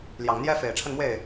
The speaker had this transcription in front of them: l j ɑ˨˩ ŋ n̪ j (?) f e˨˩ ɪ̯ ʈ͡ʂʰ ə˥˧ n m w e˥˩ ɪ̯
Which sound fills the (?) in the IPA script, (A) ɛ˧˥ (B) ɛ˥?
B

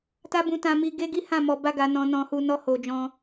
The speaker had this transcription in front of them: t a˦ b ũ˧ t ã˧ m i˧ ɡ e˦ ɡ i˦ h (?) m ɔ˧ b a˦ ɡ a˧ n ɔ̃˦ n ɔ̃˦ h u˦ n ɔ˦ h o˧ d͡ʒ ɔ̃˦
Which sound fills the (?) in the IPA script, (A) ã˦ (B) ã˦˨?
B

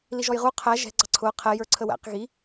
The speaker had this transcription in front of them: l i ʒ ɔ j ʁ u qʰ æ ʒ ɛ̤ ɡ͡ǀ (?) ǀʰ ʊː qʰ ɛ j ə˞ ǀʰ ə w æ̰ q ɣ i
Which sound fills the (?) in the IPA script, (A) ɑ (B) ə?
A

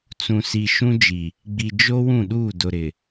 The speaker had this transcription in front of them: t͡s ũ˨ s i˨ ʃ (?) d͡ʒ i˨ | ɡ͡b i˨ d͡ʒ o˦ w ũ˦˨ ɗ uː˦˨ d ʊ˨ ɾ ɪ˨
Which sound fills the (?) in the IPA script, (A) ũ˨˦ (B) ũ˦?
B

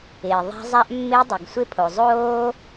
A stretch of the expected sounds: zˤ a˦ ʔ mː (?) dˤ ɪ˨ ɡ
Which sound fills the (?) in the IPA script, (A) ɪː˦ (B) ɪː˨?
A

